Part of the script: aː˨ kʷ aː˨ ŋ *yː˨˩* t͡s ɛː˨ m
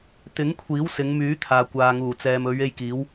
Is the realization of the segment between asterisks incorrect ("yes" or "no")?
yes